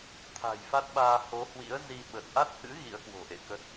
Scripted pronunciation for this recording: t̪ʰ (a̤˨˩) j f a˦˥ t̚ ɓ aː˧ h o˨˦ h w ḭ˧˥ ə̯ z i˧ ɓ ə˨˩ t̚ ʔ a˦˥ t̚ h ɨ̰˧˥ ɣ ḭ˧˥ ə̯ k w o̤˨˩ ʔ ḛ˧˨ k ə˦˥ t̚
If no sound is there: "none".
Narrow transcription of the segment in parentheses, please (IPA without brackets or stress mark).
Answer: a̤˨˩